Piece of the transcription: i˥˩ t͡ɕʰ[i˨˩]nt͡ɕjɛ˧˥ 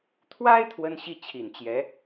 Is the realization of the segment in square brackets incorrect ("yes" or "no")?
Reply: no